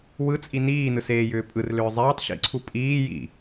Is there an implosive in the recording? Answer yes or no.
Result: no